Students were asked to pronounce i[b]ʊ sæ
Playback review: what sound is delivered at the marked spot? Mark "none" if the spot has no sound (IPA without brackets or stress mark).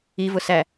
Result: v